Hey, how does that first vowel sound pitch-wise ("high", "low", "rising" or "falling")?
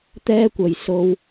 high